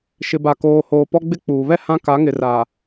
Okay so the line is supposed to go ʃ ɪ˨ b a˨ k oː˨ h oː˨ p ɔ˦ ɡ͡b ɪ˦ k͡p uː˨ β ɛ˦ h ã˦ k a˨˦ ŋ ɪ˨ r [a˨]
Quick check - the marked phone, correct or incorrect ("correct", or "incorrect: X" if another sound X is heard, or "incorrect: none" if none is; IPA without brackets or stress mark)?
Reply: correct